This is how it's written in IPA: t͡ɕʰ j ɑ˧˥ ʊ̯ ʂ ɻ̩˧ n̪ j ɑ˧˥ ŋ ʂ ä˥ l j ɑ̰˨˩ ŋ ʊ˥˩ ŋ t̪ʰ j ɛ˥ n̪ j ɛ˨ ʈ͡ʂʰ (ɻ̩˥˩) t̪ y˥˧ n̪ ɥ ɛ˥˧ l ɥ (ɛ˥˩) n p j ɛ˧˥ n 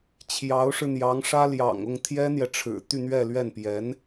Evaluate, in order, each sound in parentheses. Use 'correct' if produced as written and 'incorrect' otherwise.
incorrect: ɻ̩˨˩, correct

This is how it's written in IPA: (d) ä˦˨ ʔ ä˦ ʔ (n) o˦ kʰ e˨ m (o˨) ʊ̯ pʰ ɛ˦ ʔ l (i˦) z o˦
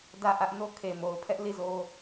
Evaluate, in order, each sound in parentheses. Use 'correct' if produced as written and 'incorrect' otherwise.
correct, correct, correct, incorrect: i˦˨

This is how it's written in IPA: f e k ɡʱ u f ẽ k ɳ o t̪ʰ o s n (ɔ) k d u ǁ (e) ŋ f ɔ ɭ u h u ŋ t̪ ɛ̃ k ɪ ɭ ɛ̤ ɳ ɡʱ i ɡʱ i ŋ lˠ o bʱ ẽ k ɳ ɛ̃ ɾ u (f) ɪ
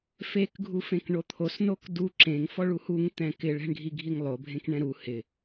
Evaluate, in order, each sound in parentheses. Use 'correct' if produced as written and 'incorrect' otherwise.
incorrect: o, incorrect: ẽ, incorrect: h

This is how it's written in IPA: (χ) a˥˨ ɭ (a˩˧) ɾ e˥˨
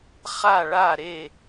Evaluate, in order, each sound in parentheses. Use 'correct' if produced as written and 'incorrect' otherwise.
correct, incorrect: a˥˨

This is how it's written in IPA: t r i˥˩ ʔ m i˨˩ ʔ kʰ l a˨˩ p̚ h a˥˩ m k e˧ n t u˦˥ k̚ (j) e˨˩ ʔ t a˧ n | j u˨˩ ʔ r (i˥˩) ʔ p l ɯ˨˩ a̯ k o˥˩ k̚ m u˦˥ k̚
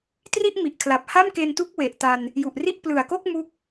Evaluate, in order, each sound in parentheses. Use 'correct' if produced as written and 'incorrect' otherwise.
incorrect: w, correct

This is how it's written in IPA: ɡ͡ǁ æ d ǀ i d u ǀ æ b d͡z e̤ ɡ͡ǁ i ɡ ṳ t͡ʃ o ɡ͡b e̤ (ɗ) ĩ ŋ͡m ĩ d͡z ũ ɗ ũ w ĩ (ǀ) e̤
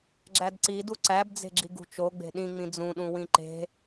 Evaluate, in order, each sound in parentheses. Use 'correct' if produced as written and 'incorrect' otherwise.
correct, incorrect: ǃ

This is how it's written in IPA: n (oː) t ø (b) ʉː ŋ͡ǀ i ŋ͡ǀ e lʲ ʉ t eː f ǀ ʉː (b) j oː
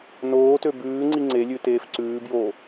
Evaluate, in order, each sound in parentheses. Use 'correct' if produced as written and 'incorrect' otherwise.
correct, correct, correct

